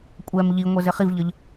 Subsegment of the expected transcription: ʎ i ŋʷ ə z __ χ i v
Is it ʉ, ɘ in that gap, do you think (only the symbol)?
ɘ